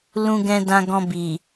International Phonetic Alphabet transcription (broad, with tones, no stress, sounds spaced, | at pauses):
l ũ˧ ɡ ɛ̃˧ d ã˧ ɡ ɔ̃˧ b i˨